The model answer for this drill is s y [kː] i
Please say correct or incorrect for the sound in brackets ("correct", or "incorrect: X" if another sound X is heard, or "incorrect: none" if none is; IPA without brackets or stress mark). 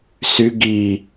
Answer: incorrect: ɡ